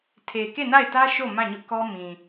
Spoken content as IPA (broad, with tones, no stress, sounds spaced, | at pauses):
tʰ e˨ k e˦˨ n a˦˨ ɪ̯ t ä˦ ʃ o˦˨ m ã˦˨ ɲ ʊ˦ ʔ k ɔ˦ m ĩ˨